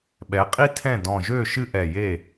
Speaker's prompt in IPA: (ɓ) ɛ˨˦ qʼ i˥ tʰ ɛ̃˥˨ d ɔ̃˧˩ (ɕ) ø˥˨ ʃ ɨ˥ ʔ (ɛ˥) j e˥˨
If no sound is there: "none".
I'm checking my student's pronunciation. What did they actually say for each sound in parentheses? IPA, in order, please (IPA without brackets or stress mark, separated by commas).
ɓ, ʒ, ɛ˧˩